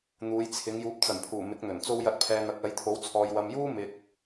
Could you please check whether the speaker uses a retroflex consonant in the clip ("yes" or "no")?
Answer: no